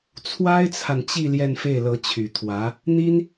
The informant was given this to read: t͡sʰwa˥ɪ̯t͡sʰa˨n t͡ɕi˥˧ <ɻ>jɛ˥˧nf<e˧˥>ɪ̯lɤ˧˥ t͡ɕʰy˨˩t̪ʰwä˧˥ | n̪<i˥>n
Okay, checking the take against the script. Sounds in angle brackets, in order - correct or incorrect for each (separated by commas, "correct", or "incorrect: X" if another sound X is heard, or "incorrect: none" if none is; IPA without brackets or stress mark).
incorrect: l, incorrect: e˥˩, correct